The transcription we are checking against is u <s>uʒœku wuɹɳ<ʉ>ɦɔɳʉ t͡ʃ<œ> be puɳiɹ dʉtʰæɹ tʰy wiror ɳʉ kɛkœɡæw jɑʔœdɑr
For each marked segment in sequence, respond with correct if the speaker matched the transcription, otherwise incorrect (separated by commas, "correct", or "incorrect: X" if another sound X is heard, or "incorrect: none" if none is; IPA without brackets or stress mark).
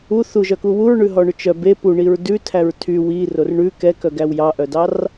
incorrect: θ, correct, correct